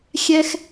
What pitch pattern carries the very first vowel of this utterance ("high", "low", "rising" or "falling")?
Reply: high